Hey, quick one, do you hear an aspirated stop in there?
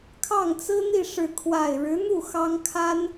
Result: yes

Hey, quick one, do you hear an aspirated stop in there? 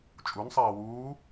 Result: no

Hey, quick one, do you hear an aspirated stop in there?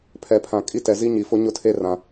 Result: yes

